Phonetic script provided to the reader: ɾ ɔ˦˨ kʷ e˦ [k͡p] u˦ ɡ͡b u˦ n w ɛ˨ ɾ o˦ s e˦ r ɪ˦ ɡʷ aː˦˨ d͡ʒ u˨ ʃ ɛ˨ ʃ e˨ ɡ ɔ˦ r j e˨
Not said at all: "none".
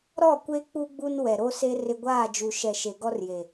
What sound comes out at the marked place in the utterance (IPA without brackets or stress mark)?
k͡p